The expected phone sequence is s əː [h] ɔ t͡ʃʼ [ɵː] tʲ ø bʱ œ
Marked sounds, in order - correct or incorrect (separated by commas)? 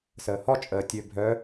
correct, incorrect